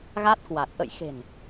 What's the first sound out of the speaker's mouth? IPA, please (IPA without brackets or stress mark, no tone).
ɣ